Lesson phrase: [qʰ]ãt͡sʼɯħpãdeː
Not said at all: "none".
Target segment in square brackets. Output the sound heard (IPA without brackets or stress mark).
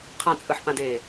qʰ